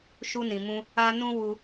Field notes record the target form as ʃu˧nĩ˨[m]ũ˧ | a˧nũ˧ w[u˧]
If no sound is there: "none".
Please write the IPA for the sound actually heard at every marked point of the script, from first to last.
m, u˧

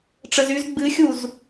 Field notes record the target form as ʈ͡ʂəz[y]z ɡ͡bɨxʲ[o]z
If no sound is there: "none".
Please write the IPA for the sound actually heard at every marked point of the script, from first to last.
y, u

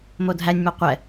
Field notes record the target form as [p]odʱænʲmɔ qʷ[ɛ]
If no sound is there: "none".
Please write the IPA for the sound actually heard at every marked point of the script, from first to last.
m, ɛ

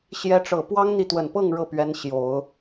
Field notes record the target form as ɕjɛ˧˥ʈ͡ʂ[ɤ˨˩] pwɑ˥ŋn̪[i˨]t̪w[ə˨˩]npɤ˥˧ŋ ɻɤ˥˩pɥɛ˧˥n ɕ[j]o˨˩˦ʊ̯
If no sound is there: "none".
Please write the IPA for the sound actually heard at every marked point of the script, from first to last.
ɤ˨˩, i˨, ə˨˩, j

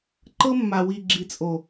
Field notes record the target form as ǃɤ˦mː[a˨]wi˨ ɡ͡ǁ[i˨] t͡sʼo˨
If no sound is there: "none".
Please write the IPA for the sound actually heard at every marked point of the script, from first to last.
a˨, i˨

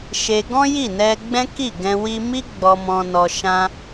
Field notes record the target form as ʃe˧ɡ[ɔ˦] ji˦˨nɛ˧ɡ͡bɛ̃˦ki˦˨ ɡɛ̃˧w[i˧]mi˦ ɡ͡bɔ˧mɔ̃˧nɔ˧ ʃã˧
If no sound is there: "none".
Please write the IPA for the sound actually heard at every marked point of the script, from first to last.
ɔ̃˦, i˧

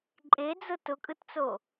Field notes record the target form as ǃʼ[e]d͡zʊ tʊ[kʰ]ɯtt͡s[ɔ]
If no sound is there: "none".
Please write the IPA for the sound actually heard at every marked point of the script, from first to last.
e, kʼ, o

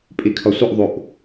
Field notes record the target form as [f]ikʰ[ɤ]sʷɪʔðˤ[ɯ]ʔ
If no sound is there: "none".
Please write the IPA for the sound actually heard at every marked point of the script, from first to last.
pʼ, ɔ, u

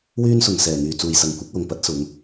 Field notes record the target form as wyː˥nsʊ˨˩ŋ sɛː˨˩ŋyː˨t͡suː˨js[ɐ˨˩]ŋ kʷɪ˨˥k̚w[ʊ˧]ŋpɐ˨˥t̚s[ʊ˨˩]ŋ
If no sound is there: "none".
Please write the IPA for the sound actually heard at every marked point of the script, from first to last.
ɐ˨, ʊ˨, ʊ˨˧

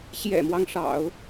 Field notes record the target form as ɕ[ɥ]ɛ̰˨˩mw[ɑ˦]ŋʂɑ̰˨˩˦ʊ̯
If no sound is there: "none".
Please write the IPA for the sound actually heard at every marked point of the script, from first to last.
j, ɑ˦

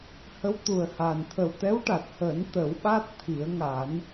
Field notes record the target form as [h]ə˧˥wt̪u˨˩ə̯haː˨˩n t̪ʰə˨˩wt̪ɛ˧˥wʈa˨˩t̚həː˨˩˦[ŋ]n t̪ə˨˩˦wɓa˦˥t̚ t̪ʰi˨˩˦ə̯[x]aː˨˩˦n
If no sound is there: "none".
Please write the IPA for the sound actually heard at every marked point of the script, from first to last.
h, none, ŋ

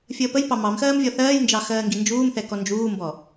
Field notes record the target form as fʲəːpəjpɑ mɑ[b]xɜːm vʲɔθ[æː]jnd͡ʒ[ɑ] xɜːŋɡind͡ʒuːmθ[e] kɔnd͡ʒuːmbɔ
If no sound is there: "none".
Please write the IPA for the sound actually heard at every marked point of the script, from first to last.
m, ɜː, ɑ, ɛ

